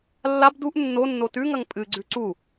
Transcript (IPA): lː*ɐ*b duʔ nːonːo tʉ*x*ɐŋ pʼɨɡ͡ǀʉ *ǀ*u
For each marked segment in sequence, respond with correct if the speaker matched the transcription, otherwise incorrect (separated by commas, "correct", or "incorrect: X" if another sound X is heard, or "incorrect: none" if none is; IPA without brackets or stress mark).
incorrect: a, incorrect: ŋ, correct